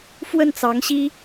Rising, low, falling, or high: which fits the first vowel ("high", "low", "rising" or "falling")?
falling